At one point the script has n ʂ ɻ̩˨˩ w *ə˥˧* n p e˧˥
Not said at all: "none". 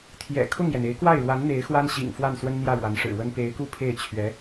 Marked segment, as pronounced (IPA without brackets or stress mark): ə˥